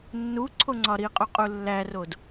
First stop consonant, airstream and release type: click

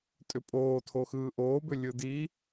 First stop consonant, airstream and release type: ejective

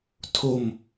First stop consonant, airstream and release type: aspirated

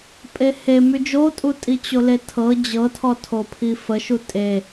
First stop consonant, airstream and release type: ejective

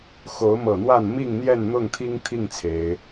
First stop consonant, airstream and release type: aspirated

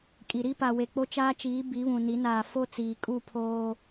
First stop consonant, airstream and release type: ejective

